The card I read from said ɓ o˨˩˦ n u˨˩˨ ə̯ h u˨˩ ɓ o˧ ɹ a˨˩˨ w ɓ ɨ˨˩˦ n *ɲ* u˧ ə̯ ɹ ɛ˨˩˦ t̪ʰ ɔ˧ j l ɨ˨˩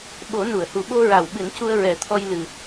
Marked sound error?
yes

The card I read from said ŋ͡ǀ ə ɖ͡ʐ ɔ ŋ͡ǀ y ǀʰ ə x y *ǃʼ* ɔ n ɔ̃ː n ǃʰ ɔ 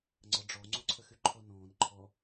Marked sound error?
yes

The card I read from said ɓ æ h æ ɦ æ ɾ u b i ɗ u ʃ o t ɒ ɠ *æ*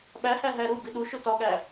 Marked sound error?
no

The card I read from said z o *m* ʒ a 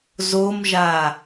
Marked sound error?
no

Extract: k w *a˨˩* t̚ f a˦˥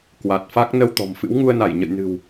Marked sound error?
no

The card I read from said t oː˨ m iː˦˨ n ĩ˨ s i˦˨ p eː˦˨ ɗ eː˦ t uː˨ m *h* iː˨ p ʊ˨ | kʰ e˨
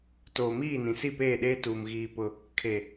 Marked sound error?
yes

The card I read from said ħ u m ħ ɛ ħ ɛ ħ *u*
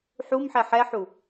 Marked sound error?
no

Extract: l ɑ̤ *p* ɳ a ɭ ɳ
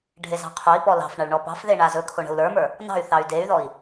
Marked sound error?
yes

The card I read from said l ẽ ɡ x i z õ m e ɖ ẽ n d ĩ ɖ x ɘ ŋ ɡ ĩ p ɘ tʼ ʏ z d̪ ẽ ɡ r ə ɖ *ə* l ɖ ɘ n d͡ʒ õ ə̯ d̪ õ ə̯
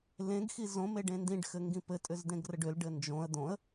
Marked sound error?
yes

